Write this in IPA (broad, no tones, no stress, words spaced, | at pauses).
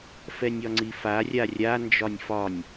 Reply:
fɛnʲɒŋ͡ǀifa rʲarʲa nd͡ʒɒnʲfɒnʲ